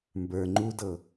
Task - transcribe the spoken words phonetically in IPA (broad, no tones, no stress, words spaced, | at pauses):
mbə˞ ŋ͡ǃudɤ